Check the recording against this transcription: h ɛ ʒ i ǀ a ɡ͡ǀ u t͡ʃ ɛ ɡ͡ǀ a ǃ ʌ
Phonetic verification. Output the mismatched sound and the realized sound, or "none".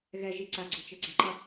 h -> ɣ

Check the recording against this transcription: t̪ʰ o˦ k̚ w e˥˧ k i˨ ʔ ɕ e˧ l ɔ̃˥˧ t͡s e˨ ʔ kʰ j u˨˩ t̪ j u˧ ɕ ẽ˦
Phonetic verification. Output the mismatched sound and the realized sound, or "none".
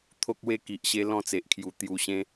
none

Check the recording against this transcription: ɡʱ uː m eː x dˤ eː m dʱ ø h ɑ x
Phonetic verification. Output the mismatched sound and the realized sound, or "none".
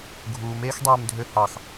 none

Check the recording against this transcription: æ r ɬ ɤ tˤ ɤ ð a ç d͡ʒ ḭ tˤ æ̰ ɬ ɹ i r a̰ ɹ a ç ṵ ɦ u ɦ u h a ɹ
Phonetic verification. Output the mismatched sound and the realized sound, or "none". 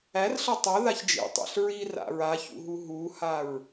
none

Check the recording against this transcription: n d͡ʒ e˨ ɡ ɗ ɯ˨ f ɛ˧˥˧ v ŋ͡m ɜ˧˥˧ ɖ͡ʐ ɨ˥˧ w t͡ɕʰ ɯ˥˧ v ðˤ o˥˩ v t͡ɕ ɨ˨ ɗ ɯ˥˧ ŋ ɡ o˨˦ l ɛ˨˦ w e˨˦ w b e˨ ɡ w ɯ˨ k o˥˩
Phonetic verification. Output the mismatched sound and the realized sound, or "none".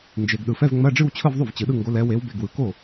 none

